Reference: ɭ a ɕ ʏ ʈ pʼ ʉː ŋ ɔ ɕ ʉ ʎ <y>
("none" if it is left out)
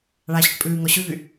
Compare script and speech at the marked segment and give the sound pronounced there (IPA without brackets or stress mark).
y